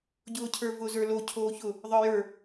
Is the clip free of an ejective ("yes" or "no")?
yes